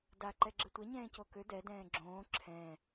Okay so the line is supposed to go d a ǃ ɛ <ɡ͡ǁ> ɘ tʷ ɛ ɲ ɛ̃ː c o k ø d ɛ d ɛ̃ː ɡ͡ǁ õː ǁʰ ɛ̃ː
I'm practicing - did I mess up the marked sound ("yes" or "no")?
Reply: no